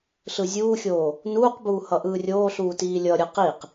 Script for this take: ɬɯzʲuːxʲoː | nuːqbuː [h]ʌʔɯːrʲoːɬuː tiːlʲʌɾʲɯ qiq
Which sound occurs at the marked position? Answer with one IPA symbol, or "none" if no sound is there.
h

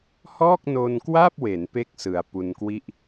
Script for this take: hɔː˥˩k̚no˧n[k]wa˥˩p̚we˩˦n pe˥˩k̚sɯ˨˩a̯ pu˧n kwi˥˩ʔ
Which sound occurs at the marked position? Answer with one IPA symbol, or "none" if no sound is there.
k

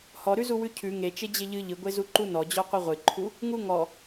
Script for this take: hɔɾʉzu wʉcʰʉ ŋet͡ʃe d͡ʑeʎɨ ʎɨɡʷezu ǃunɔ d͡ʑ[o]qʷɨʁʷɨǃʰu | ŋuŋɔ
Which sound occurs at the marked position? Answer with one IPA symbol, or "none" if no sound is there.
ɔ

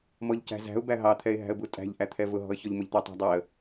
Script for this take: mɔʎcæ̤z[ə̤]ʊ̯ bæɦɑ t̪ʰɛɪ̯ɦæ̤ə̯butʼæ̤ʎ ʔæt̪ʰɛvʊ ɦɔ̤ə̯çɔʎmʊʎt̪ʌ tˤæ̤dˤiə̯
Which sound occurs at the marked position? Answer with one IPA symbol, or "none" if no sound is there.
æ̤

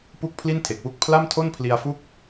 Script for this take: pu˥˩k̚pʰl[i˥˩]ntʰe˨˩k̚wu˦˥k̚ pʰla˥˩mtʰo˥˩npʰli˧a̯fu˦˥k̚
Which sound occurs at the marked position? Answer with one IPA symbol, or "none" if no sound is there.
i˥˩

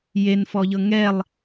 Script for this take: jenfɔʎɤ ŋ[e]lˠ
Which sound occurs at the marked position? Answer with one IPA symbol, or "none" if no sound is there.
ɛ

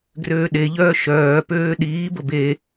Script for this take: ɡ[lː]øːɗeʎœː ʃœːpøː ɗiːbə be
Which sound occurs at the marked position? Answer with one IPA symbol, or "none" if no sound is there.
r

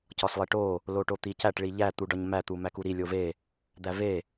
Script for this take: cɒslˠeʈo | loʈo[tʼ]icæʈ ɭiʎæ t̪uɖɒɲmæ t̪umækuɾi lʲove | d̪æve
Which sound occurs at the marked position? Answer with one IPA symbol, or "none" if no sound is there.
t̪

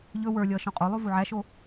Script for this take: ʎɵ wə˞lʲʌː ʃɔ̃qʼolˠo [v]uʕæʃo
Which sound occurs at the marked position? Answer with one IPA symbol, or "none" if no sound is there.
v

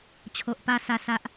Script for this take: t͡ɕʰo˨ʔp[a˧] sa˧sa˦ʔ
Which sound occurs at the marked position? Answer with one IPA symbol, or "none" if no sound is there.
a˧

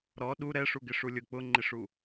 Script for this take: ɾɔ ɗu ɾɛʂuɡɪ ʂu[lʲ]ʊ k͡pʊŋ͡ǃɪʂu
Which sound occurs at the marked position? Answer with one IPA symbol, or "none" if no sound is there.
lʲ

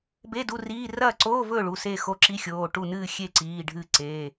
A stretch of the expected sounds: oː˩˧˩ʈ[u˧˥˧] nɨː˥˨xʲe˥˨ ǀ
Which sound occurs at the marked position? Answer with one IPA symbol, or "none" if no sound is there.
u˥˨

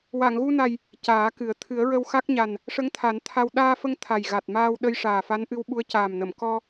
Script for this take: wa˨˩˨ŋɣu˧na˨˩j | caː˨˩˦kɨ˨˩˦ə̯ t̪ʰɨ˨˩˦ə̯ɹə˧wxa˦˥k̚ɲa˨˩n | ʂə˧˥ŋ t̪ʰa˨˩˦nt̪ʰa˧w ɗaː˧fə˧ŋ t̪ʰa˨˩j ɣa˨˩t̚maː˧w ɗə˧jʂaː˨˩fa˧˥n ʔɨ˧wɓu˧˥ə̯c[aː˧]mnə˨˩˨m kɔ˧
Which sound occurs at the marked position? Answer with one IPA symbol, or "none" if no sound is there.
aː˨˩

